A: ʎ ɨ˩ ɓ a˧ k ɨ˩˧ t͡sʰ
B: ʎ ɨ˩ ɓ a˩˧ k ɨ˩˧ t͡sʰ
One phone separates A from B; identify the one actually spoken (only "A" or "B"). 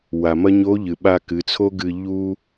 A